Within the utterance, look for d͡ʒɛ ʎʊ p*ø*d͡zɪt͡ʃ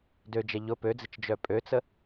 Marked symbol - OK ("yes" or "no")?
yes